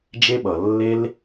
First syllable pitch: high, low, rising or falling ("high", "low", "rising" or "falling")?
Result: high